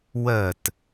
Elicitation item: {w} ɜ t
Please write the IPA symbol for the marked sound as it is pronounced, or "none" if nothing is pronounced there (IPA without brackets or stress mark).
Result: w